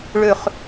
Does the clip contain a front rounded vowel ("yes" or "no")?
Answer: yes